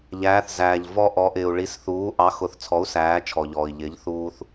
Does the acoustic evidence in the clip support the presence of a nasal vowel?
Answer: no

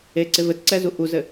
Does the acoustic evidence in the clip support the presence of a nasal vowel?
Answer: no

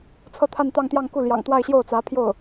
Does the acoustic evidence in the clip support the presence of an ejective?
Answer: no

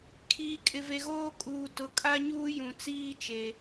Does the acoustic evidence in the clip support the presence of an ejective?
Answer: yes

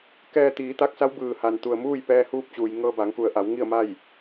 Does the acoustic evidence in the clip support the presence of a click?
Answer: no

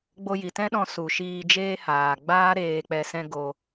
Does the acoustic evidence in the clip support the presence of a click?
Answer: no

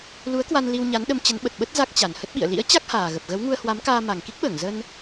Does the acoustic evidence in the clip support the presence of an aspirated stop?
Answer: no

